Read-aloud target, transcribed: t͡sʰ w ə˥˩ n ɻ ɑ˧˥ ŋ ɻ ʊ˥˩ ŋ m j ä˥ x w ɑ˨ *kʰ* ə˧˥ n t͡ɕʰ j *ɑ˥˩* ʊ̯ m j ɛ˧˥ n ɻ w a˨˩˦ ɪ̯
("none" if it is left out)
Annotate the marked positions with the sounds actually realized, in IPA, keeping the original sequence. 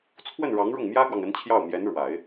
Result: ŋ, ɑ˥˩

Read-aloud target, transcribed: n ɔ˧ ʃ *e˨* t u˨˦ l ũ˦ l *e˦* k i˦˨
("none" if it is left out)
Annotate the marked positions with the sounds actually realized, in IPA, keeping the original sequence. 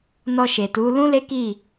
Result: e˨, e˦

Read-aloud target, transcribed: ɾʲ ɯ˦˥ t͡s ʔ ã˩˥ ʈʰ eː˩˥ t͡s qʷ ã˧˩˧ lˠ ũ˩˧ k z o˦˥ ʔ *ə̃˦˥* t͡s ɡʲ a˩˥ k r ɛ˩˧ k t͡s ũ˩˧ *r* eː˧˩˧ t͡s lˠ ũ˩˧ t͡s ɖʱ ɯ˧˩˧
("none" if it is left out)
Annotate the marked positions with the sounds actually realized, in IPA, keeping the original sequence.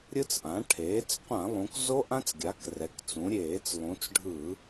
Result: ã˦˥, ɾʲ

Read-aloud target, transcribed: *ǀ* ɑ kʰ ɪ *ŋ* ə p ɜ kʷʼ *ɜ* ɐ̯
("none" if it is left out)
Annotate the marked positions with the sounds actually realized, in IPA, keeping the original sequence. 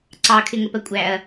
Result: ǀ, ŋ, æ

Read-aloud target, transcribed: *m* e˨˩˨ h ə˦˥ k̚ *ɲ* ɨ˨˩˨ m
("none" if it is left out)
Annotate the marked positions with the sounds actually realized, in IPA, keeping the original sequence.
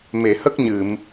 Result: m, ɲ

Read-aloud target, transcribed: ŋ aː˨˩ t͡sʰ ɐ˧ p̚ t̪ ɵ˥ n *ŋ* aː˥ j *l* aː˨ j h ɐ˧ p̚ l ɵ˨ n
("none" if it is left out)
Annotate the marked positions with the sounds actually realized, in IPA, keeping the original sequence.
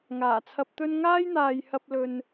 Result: ŋ, n̪

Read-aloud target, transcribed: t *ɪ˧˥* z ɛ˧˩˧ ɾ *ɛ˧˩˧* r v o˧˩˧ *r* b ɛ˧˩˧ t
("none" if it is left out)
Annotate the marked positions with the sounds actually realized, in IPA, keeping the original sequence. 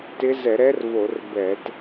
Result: ɪ˧˥, ɛ˧˥, r

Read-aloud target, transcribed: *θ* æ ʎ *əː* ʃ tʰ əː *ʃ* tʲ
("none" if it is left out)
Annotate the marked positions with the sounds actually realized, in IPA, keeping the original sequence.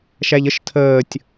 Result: ʃ, ə, none

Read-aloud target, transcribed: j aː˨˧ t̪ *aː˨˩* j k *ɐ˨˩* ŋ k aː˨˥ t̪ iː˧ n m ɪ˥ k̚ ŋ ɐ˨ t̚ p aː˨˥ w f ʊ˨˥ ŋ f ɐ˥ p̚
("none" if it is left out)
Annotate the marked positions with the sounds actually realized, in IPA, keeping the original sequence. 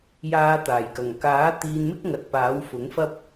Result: aː˨˩, ɐ˨˩

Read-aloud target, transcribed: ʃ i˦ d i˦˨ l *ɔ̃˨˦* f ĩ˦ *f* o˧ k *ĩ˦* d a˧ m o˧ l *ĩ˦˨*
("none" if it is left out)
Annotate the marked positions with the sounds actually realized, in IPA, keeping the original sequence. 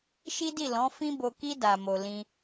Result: ɔ̃˨˦, b, i˦, ĩ˧

